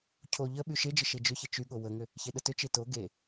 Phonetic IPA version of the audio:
cʰo ʎə ɓyʃed͡ʒə ʃed͡ʒʏçə t͡ʃyɠo wəŋʏ | çeɗətʏt͡ʃe to ɡe

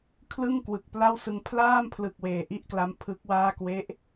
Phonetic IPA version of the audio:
kʰlɯ˥˩ŋ kwɯ˨˩k̚pla˥˩wsɯ˧ŋ pʰlaː˥˩mpʰlɯ˨˩k̚ weː˨˩ʔi˥˩ʔkla˦˥m pʰɯ˦˥k̚waː˥˩ kwe˦˥ʔ

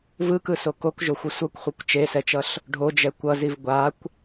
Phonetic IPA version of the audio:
vɯkɯso kokʒoxʷʌ sʷʌkʷχʷʌkʷ t͡ʃesɛt͡ʃʌɬ | ɖʱod͡ʒɛ kʷʌziv ɡʷakʷ

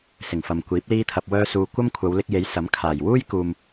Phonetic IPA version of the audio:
sɪ˨˩ŋfɐ˨mkʷiː˨˥p̚ liː˥t̪ʰɐ˧p̚ wœː˥suː˧ kʷɐ˥mkʷʰɐ˨˧wlɪ˧k̚je˨˥j sɐ˨˥m kʰaː˨˩j wuː˥jkuː˨m

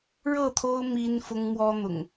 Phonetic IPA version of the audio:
ɻɤ˥˨t̪ʰo˦ʊ̯ mi˦nfʊ˦ŋmwɔ˦n̪ʊ̰˨˩ŋ

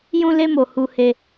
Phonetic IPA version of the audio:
jũ˧le˧mo˨ hu˧he˧

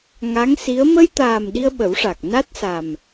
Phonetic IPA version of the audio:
ŋa˧˥ŋsi˧˥ə̯ mə˧jt̪aː˨˩m ɗi˧ə̯ɓə˨˩˦wʂa˨˩k̚ na˦˥t̚sa˨˩m

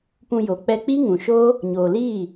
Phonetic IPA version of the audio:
pũ˧jo˨ k͡pɛ˧k͡pi˦ŋũ˨ʃo˦ | ɲoː˨liː˦˨

